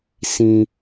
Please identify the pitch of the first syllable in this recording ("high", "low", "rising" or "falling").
high